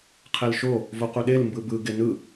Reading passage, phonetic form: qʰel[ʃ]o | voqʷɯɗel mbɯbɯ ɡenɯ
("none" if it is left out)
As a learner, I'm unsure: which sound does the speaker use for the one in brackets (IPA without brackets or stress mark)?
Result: ʃ